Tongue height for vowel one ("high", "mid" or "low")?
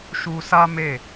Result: high